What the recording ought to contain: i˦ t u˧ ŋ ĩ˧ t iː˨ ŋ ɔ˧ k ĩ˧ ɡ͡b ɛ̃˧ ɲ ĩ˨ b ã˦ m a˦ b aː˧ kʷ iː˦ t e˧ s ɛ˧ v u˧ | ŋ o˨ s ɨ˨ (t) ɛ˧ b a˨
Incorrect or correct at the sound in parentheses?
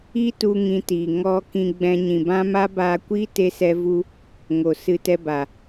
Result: correct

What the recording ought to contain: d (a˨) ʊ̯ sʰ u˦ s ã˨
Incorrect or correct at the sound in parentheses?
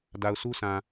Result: correct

